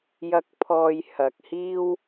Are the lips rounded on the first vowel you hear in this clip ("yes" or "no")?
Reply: no